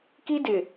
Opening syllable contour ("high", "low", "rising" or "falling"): high